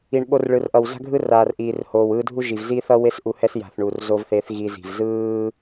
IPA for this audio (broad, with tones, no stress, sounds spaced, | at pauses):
i˨ ɳ ɓ o˧ r ɭ ɯ˨ r ʔ ʌ˨ w z a̤˦ ɡʱ ɯ˦ r aː˨ r ʔ iː˨ r h oː˨ w ɯː˧ dʱ u˦ ʒ i˨ v z iː˦ θ ʌ˦ w e˦ s ʔ u˧ h ɛ˦ s j a̤˨ θ ɳ u˨ r z o˧ v θ e˨˦ θ ɣ i˧ z i̤˨ v z ɯː˦